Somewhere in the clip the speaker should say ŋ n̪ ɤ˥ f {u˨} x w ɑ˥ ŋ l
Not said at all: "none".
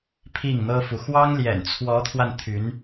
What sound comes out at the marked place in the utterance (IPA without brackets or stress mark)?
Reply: u˨